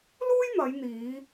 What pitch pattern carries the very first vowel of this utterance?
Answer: high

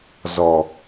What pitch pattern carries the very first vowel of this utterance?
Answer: low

